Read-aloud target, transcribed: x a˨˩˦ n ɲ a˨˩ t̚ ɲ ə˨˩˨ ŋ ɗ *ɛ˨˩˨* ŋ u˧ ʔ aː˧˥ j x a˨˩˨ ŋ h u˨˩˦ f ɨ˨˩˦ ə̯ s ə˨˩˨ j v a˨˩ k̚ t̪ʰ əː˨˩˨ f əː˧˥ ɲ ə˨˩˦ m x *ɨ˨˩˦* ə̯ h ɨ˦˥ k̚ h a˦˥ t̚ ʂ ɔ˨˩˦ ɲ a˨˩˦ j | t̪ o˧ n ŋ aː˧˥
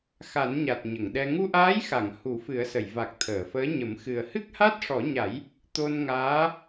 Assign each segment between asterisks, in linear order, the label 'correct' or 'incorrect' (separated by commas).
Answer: incorrect, incorrect